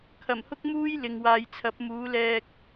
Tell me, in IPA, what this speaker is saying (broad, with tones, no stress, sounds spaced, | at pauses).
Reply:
kʰ ɐ˨˩ m h ʊ˥ k̚ m uː˥ j l ɪ˨ ŋ w aː˨ j t͡sʰ ɐ˨˥ p̚ m uː˨˥ l ɛː˧ k̚